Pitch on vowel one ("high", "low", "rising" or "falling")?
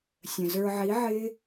low